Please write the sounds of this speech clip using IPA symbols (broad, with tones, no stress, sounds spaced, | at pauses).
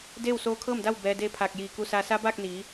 d eː˥˨ w s oː˧˥ kʰ ɤː˥˨ m d a˥˨ w b ɛː˧ d eː˧˥ pʰ aː˧˩ k̚ j iː˧˩ k u˧ s aː˧ s a˧˥ b aː˥˨ k̚ n iː˩˧